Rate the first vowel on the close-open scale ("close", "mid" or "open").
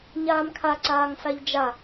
open